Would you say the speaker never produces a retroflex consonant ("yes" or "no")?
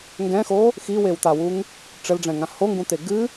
no